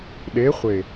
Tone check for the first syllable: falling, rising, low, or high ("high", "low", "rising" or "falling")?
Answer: rising